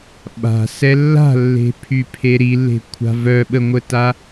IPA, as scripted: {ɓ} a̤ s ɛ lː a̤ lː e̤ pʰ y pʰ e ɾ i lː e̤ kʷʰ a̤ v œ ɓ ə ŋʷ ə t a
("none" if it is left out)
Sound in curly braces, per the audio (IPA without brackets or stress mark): ɓ